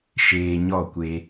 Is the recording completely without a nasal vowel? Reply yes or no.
yes